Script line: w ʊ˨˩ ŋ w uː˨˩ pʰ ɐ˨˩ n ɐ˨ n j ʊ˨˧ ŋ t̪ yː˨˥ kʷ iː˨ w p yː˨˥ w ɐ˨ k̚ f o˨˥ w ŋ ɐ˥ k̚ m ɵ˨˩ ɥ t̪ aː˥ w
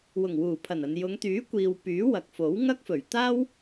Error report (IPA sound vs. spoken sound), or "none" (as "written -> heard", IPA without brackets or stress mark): m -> f